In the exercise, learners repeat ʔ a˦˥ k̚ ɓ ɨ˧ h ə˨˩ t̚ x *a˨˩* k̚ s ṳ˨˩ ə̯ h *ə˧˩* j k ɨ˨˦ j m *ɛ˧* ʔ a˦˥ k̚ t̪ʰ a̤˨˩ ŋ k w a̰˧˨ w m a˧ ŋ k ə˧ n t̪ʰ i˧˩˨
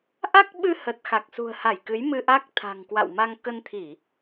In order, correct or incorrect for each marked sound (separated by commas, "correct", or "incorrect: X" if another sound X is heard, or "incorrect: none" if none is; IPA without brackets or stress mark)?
correct, incorrect: a˧˩, incorrect: ɨ˧